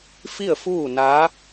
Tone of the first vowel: falling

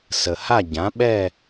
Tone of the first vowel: low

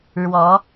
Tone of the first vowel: rising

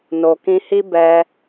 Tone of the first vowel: low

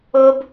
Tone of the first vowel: high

